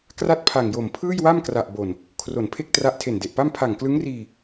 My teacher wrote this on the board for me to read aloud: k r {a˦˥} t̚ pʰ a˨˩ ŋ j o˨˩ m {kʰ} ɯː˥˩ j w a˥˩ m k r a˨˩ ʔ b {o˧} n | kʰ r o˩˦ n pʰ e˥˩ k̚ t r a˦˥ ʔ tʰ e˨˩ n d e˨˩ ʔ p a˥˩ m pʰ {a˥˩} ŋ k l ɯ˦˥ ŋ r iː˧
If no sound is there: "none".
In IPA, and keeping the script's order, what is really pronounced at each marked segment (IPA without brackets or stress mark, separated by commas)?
a˥˩, pʰ, o˨˩, a˨˩